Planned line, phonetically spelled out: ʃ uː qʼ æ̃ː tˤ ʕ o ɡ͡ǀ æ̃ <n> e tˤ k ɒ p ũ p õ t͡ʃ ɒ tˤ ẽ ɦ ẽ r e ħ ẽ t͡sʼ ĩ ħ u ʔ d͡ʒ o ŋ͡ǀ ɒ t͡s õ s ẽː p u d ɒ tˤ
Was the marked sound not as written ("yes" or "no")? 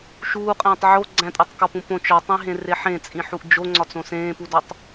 yes